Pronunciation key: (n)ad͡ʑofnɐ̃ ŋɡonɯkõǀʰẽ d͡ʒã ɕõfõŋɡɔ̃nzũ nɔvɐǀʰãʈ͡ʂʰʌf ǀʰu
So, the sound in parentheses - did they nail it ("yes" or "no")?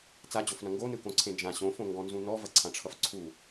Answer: no